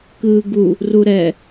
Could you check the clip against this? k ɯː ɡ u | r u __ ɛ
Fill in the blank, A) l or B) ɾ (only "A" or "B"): B